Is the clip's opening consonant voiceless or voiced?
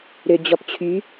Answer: voiced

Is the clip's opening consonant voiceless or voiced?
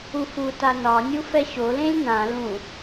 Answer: voiceless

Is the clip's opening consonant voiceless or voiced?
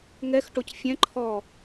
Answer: voiced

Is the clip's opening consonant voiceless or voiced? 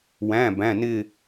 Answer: voiced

